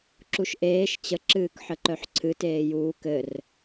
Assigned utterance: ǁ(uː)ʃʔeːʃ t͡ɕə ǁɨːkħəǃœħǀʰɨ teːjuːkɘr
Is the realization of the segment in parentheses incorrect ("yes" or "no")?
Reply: yes